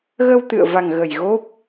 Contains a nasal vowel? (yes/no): no